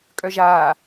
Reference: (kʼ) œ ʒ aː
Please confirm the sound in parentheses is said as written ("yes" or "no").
yes